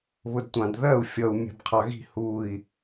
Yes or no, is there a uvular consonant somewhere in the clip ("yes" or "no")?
yes